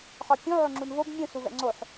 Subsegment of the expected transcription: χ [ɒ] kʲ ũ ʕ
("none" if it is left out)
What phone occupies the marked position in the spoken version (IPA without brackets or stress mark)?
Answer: ɒ